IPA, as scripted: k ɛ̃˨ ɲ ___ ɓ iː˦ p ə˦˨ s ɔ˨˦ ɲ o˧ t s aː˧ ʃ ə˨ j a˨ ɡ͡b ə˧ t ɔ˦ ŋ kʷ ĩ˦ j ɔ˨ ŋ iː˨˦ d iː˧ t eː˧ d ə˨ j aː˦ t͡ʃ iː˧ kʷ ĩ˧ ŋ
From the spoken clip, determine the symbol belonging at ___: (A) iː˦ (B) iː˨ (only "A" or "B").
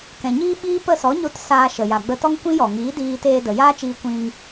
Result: A